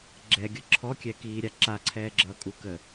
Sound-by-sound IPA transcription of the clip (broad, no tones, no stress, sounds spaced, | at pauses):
ɡ͡ǁ ɛ ɡʲ ʌ ǁʰ ɔ kʲ ɛ k iː ɾʲ a ǁ a ǀʰ ɛː ɡ͡ǁ ʌː kʼ u k ə